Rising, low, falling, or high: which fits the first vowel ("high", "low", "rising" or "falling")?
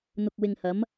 low